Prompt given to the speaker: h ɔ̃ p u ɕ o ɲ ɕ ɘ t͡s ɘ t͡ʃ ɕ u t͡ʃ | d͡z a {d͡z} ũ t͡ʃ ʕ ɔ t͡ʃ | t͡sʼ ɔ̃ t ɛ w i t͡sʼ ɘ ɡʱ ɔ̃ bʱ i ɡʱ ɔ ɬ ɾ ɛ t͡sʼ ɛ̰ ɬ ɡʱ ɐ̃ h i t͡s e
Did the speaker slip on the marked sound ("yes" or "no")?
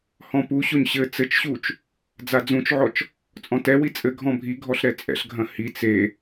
no